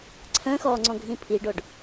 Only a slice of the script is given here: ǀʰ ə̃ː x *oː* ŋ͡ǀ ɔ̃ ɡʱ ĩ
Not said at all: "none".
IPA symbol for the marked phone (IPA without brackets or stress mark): ɔː